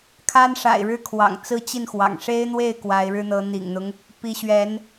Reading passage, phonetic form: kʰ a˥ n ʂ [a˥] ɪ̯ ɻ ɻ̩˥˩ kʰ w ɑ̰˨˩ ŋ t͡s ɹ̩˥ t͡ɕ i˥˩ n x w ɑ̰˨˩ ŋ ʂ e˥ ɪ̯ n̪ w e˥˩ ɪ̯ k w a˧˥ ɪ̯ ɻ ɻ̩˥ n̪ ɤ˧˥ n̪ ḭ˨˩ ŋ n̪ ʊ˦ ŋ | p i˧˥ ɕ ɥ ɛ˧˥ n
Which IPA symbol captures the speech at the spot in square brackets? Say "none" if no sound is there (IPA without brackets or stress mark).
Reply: a̰˨˩